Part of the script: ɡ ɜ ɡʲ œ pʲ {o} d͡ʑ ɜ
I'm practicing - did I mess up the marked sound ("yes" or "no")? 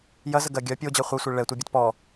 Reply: no